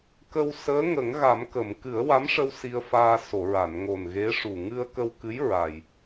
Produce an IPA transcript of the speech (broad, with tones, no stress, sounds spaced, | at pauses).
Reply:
k ə˧ w s əː˧˥ ŋ ə˨˩˦ ŋ ɣ a˨˩˦ m k ə˨˩˨ m k ɨ˨˩˦ ə̯ w a˧˥ m ʂ ə˧ w s i˧ ə̯ f aː˧ s o˨˩˨ ɹ a˨˩˨ n ŋ o˨˩ n ɣ e˧˥ ʂ u˨˩ ŋ ɨ˧ ə̯ k ə˧ w k ɨ˧˥ j ɹ a˨˩ j